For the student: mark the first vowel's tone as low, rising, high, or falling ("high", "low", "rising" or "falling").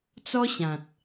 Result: high